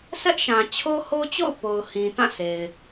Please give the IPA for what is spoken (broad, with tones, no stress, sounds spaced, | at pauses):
sʰ ɛ˦ ʔ ʃ ã˨ t͡ɕʰ o˦ h o˦ t͡ɕ o̰˦˨ ʊ̯ p o˨ ʊ̯ h ĩ˨ t ã˦˨ sʰ e˨ ɪ̯